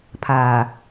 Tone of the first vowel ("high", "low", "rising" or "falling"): low